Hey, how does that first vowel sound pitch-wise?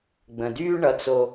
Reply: low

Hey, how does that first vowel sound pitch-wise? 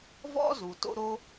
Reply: high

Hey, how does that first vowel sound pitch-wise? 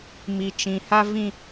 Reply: low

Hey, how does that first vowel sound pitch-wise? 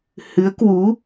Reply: rising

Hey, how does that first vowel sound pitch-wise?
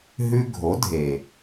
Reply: high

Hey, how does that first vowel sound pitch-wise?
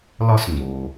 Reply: high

